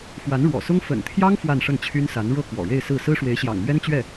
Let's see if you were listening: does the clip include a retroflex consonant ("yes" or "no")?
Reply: yes